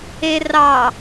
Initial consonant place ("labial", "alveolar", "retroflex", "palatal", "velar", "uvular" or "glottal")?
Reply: alveolar